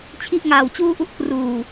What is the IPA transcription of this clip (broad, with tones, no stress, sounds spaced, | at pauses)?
t͡ɕʰ i˥˩ ʔ ŋ aː˧ w t͡ɕ uː˥˩ ʔ u˥˩ ʔ k r uː˨˩